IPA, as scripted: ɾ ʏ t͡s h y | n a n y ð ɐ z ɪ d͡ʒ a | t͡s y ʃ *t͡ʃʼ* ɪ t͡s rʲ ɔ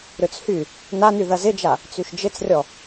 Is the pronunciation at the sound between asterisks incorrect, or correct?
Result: incorrect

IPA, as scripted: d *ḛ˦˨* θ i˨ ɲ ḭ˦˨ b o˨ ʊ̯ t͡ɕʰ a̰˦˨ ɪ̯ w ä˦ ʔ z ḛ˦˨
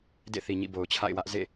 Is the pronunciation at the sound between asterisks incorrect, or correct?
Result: correct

